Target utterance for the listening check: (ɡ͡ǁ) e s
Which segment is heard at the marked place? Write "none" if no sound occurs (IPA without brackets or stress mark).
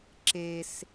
ǁ